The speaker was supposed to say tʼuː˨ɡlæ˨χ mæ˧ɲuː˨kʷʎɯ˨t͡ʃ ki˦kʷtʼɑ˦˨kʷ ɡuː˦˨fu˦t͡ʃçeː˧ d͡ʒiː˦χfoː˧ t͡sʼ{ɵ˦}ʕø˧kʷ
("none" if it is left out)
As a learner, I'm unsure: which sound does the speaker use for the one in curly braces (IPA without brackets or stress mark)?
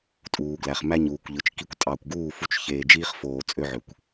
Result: ø˦